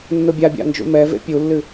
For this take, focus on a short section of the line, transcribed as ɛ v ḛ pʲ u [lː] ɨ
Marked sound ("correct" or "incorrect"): correct